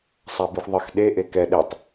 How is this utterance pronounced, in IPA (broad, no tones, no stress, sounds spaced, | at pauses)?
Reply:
sˤ a b i xʷ ðˤ ə x ɗ e ʔ e k ɛ ɗ e tˤ